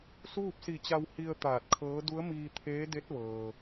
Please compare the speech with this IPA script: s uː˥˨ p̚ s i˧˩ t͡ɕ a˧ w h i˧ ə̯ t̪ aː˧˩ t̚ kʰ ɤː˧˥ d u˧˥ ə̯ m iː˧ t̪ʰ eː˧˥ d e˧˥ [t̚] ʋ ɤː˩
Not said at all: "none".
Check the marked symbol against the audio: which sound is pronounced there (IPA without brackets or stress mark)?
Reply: t̚